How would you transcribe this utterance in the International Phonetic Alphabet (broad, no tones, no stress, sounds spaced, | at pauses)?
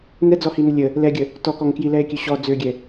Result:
n ɛ d͡z ɔ h i n ə lʲ ə | l ɛ ɡʲ ə | t ɔ k ɔ ŋ k j i l ɛ e̯ kʲ ø ɕ ɔ d͡z ø ɡʲ ɛ